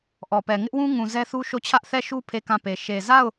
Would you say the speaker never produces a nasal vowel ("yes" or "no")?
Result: no